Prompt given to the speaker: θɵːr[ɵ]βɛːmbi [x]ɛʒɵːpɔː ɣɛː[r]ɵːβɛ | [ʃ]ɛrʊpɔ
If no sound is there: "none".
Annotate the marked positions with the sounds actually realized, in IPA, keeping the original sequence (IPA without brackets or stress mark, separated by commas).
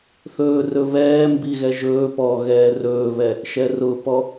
ɵ, ɣ, r, ʃ